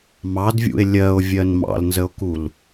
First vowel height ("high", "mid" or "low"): low